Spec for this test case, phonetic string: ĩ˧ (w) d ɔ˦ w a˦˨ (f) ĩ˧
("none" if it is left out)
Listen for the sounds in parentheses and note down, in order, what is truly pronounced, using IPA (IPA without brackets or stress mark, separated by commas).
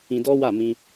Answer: none, m